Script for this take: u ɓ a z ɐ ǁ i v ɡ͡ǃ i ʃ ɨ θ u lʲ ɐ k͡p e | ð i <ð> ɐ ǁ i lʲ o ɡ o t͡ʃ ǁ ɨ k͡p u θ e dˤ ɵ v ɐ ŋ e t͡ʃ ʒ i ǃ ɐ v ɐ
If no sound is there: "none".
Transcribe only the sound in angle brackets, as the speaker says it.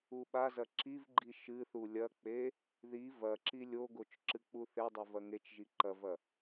v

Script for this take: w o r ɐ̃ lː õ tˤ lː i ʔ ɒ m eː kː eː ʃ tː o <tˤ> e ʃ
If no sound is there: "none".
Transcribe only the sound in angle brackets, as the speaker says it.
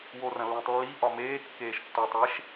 tˤ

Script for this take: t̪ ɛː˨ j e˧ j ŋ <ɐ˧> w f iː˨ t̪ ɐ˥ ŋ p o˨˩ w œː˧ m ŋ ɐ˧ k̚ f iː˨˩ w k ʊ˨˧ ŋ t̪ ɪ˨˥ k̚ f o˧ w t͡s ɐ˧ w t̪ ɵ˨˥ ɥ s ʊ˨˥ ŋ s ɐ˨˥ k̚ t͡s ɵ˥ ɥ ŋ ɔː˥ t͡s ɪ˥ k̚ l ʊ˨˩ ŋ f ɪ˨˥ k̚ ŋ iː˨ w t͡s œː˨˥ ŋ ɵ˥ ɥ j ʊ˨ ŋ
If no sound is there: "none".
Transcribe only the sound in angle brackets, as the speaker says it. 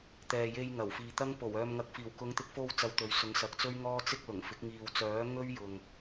ɐ˨˩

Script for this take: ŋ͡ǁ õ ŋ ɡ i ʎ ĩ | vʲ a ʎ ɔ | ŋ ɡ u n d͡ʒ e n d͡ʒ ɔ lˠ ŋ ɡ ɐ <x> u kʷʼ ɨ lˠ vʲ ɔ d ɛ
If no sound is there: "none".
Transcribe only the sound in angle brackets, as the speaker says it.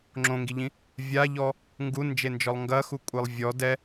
x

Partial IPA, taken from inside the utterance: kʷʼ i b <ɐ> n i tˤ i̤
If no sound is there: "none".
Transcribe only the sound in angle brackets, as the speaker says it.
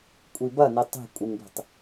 ɐ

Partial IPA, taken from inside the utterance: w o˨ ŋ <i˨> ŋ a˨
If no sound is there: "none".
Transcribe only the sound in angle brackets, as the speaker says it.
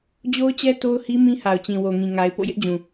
ĩ˨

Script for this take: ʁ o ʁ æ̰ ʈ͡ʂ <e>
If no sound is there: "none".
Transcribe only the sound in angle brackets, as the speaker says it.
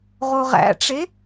e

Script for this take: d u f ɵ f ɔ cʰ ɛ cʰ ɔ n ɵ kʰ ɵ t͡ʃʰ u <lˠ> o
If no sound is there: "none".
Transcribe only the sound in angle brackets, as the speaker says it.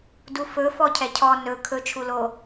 l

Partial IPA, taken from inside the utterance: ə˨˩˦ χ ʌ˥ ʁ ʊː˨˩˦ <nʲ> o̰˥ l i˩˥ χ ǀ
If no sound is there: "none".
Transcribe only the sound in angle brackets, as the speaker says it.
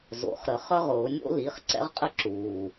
nʲ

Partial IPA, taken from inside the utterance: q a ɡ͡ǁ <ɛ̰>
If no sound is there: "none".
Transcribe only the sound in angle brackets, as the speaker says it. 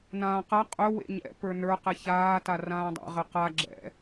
ɛ̰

